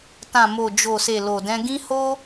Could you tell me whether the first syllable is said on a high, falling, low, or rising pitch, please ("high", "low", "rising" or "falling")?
low